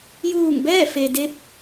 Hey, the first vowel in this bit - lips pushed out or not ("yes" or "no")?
yes